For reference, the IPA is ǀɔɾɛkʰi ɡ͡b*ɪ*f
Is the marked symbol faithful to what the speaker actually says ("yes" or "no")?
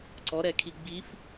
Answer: no